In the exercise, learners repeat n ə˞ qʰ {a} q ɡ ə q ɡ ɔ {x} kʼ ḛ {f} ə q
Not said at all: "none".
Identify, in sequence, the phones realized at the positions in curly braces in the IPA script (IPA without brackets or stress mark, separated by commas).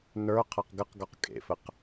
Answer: a, q, f